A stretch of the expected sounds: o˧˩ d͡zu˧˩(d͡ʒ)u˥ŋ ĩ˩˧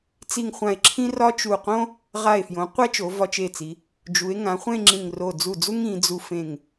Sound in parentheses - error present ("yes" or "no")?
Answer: yes